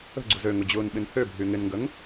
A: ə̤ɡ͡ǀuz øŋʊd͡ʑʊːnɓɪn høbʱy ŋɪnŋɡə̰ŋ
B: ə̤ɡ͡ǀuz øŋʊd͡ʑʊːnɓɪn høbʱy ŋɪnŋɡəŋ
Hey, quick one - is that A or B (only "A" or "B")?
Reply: B